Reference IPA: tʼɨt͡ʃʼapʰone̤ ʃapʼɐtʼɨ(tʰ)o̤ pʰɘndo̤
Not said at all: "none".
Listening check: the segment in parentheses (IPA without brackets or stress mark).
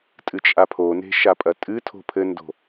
tʰ